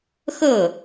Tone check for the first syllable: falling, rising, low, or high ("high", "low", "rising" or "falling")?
falling